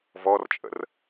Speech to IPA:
v ɔ r t͡ʃʼ ə̰ r

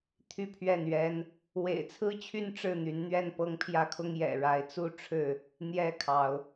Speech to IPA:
t̪ʰ y˥˨ pʰ ɥ ɛ˥˨ n ɥ ɛ˦ n | w ḛ˨˩ ɪ̯ t͡sʰ ɹ̩˦ t͡ɕʰ y˦ n ʈ͡ʂ ɻ̩˥˨ n̪ y˨˦ n n̪ ɥ ɛ˥˨ n p ɤ˦ ŋ pʰ j ä˦ kʰ ʊ˦ ŋ j ɛ̰˨˩ ɻ a˨˦ ɪ̯ t͡s u˥˨ ʈ͡ʂʰ ɻ̩˥˨ | n̪ j ɛ˦ kʰ ɑ˨˦ ʊ̯

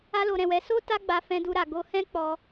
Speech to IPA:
a˦ l o˧ ɾ ɛ̃˧ w ɛ˧ s o˦ t a˦ ɡ͡b a˧ f ɛ̃˦ d u˦ ɾ a˧ ɡ o˧ h ɛ̃˦ k͡p ɔ˧

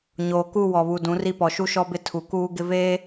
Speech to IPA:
ɲ oː˨ k u˦˨ w ɔ˨ β u˨ d ũ˨˦ r i˦ p ɔ˨ ʃ u˦ ʃ ɔ˦ b ɪ˦ tʰ u˨ k uː˦ ɡ ɪ˦ v eː˦

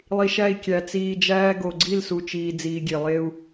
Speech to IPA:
lˠ i˨ ʃ æ˦˨ i̯ kʲ æ˨ t͡s iː˨ d͡ʒ æː˦ ɡ o˨ ɡ͡ǀ i˦˨ l s u˨ t͡ʃ iː˨ d͡z iː˨ ɡʲ e˨ lˠ e˦ u̯

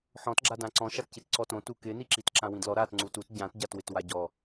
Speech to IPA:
ħ ɔ̃ t ɡ͡ǁ a d ã ǀ ɔ̃ ʃ a t c i t ǀ ɔ t õ t u k ɪ n i ǁ i t ǁ ã w ĩ d l ɔ ɾ a t ŋ͡ǀ u t u t ɟ ã t ɟ a t w ɪ t w a ɟ ɔ

